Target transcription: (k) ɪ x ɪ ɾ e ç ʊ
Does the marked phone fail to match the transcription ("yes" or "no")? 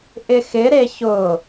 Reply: yes